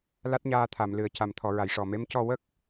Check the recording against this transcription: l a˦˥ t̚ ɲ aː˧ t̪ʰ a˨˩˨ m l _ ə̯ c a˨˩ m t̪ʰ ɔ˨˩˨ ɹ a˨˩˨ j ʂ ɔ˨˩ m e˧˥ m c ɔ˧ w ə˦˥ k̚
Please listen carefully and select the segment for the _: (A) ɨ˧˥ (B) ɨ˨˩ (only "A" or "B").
B